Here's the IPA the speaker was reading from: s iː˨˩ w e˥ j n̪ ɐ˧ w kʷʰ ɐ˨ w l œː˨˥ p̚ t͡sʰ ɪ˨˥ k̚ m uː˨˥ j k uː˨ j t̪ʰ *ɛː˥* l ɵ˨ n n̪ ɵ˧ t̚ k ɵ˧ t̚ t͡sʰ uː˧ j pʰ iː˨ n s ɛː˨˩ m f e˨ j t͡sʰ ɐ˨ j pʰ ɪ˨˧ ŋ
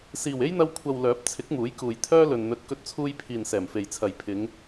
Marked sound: incorrect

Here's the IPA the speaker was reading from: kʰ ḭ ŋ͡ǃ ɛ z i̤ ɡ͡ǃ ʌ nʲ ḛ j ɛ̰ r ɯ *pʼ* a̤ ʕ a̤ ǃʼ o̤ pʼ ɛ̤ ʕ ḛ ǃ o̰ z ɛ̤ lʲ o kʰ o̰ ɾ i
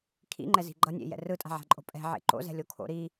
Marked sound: incorrect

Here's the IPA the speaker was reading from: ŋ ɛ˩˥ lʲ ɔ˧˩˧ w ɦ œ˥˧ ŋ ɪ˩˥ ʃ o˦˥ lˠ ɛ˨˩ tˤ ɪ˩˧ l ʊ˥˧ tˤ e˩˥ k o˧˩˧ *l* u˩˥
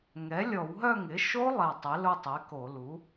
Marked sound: correct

